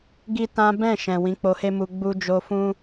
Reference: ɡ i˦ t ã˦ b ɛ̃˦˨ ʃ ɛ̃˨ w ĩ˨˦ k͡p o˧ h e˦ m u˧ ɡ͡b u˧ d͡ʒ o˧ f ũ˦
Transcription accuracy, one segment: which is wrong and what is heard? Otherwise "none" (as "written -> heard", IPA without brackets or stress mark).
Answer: none